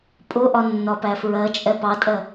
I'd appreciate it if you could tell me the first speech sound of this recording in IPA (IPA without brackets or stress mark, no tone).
pʼ